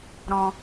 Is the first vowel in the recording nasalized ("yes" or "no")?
yes